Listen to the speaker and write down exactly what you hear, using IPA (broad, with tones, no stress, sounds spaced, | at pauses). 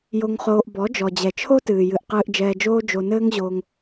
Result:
j o˧ ŋ χ oː˧ ʔ b ɔ˨˦ d͡ʒ ɔ˨ d͡ʑ ɛ˨ t͡ʃʰ o˦ t ɨː˨ j ɨ˨ ʔ q ɨː˧ ʔ d͡ʒ ɛː˧ d͡ʒ oː˦ d͡ʒ o˧ n ɘː˦ ŋ ʑ oː˧ ŋ